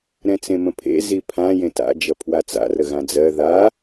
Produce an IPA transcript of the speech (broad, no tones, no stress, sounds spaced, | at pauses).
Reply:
ɾ ɛ̃ t͡s ẽ m ə̃ pʰ ḛ z i pʰ ã j ẽ t a̰ d͡ʒ ʌ pʰ w a t͡s a̰ r ə ɣ ã d͡z ɜ ð a